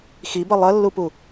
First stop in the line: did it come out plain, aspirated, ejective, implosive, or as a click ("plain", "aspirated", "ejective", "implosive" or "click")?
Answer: plain